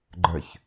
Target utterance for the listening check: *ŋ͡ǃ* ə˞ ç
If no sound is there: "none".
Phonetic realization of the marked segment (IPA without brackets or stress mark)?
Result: ɡ͡ǃ